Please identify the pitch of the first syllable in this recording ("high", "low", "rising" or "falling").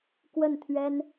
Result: falling